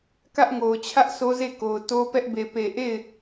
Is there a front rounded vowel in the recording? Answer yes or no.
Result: no